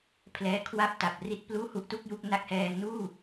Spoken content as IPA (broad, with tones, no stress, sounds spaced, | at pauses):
pʰ l ɛː˧ kʰ w a˥˩ p̚ t a˨˩ p̚ r i˦˥ t̚ p l uː˥˩ h u˦˥ ʔ t u˥˩ k̚ j u˥˩ k̚ n a˦˥ k̚ h ɛː˧ ŋ n uː˥˩